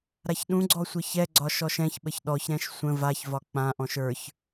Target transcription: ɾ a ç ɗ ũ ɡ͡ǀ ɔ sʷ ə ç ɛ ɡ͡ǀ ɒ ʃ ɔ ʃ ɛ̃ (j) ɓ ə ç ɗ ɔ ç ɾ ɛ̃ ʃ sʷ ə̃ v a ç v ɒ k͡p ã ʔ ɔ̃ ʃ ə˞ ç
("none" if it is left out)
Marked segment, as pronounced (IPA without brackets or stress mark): ç